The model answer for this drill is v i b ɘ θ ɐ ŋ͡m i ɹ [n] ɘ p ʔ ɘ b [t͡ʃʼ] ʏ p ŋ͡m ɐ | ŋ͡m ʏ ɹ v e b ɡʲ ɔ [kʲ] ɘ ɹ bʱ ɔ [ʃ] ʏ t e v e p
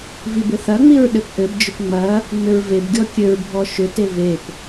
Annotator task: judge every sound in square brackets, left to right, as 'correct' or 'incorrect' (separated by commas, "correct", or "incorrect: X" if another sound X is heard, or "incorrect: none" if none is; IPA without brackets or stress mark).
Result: incorrect: ɗ, incorrect: d͡ʒ, correct, correct